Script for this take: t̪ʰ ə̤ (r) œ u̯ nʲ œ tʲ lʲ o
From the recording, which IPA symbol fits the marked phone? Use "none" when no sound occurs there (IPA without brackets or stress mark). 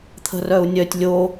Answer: r